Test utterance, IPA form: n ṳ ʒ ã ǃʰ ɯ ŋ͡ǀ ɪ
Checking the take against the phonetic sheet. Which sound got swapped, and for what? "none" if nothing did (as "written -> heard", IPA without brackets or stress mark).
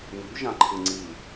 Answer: ɪ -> i